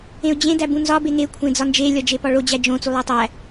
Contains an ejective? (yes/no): no